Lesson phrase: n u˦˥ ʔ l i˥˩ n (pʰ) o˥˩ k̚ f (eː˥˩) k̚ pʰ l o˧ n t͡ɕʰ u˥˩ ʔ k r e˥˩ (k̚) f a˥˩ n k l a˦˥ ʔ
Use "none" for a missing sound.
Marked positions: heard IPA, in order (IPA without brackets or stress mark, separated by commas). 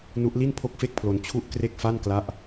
pʰ, e˥˩, k̚